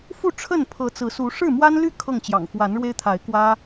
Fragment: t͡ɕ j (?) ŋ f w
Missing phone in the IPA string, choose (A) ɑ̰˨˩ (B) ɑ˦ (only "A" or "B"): A